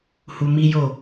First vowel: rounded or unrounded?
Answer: rounded